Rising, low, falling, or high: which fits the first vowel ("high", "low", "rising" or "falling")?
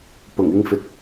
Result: low